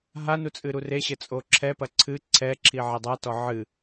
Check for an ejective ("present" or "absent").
present